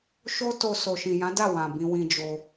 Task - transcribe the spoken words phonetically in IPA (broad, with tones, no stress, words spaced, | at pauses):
ʃo˦to˧ so˨ʃĩ˨jã˨˦da˦˨ wã˨ bĩ˧wĩ˧d͡ʒo˧